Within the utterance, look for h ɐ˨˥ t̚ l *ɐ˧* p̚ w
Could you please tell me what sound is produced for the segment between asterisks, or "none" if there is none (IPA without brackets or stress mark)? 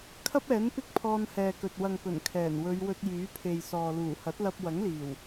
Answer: ɐ˧